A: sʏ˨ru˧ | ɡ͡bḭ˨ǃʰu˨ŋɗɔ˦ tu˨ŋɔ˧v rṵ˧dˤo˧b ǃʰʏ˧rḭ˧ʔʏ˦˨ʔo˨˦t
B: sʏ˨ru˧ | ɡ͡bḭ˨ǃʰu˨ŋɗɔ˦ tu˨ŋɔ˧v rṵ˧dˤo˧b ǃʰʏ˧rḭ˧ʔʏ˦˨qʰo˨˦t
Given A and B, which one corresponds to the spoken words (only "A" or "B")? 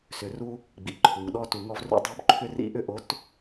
A